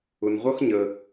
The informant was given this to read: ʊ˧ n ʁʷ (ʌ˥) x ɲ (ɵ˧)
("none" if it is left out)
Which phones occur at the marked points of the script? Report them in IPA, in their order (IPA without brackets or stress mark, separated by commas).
ʌ˥, ə˧